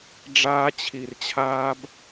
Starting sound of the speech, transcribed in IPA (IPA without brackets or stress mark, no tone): ɖ͡ʐ